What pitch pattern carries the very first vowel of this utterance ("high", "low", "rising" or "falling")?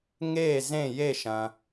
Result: falling